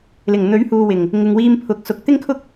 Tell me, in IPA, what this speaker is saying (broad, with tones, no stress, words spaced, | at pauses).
lɪ˨˩ŋn̪ɵ˨˥ɥhuː˨wɪ˨˩ŋ | ŋɪ˨ŋwiː˧mpʰʊ˨˥k̚ sʊ˧k̚ t̪ɪ˥ŋkʰʊ˥k̚